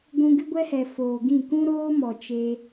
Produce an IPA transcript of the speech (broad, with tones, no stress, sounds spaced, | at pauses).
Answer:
ɡʷ ũ˧ ɡ ɨ˦ ɡʷ ɛ˦ h ɛ˨ f oː˨ ɡ ĩ˦˨ k ũ˦ ɾ oː˦ m ɔ˨ t͡ʃ e˧